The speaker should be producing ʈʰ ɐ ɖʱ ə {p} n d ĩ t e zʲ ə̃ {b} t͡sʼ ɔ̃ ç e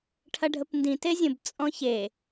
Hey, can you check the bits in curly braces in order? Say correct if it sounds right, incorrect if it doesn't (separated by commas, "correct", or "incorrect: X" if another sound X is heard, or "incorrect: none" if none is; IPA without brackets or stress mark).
correct, correct